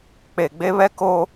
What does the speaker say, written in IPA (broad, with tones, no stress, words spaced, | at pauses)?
k͡pe˨ɡ͡be˦βɛ˦ ko˦